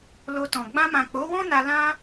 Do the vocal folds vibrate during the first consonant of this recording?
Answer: yes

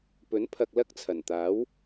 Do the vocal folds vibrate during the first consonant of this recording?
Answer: no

